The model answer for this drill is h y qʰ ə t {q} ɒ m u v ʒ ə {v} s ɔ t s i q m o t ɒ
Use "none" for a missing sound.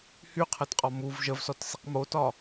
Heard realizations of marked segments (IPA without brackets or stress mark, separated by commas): qʼ, v